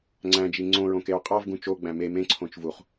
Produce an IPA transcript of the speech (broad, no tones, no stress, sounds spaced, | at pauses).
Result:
ŋ͡ǀ æ̃ d͡ʒ i ŋ͡ǀ õ ɹ õ k e ɹ qʼ ɑ v ɡ ũ t͡ʃ o ɡ͡b æ̃ m e m ẽ ǀʰ õ t͡ʃ v u χ